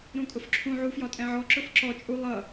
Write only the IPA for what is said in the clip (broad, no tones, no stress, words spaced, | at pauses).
ɾũkʼʊfǁʰũ ʕufjɒtʼɛ̃ʕɔ ǁʊfǁɔ t͡ʃʼu lˠʌ